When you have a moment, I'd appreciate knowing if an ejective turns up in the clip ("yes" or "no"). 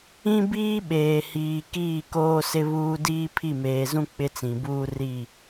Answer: no